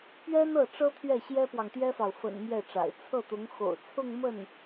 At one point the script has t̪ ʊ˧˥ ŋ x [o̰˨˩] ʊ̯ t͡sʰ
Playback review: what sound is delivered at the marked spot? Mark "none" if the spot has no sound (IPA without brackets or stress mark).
o̰˨˩